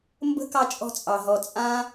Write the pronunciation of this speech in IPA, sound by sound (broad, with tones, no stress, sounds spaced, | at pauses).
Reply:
m b ə̤˦ k ɑ˧ t͡ʃʼ ɔ̤˧ t͡sʼ ɑ˨ ɦ ɔ˨ t͡sʼ ã˦